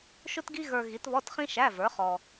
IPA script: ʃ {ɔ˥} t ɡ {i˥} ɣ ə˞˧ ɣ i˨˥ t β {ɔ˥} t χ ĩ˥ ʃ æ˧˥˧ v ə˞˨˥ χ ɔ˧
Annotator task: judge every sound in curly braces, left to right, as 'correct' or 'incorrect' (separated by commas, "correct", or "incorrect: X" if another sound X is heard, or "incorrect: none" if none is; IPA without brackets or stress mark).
incorrect: ʊ˥, correct, incorrect: ɔ˧˥˧